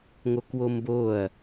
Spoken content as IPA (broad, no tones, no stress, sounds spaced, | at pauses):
ŋ o k w o m b o ɐ̯